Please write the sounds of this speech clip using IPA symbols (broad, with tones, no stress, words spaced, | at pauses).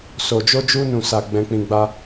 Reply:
so˨d͡ʒo˧d͡ʒu˧nũ˨ sa˨ ɡ͡bɛ̃˧k͡pĩ˧ɡ͡ba˦